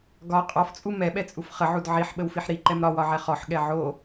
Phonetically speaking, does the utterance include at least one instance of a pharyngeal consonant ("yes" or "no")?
yes